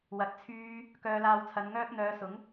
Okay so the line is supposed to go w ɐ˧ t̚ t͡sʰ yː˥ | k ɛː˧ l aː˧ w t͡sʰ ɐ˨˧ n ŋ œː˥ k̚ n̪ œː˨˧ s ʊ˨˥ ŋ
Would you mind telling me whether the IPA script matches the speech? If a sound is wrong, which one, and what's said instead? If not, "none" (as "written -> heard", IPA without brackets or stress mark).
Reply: ɛː˧ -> œː˧